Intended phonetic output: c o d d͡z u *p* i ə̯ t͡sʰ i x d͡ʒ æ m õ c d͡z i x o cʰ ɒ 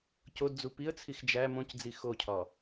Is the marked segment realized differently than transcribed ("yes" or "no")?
no